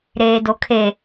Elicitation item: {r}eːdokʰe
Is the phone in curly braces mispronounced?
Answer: yes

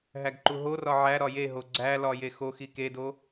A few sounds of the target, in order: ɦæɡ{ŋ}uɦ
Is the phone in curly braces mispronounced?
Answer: yes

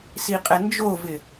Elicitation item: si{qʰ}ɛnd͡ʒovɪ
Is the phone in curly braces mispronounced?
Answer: yes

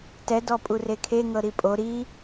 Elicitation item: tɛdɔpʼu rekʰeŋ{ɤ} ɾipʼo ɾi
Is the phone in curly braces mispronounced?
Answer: no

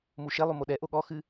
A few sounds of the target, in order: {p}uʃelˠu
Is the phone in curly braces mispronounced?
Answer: yes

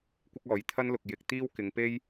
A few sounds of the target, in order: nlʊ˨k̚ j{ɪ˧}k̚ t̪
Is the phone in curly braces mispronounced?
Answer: no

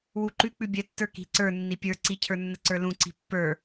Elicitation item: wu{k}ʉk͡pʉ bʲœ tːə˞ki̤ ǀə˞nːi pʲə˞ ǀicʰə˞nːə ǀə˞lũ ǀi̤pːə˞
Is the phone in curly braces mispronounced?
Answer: yes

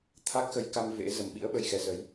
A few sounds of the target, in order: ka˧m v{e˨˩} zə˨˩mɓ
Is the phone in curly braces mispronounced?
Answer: yes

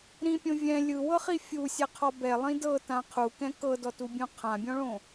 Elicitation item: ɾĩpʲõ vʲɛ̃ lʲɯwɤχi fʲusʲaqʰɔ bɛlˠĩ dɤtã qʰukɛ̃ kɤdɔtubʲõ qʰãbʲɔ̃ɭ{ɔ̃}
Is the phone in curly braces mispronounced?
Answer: yes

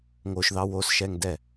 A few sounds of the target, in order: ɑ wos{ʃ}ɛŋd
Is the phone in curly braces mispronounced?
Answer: no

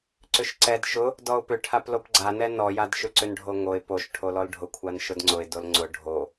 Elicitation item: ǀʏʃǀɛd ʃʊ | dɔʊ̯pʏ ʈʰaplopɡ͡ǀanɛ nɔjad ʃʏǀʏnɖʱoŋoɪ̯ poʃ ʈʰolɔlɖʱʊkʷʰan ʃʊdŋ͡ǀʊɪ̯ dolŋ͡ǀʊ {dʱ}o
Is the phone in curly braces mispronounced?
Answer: yes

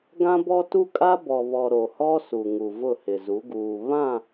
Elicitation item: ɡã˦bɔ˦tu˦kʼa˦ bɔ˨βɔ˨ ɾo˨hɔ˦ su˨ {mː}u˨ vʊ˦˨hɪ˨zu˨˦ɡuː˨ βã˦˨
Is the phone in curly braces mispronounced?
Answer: yes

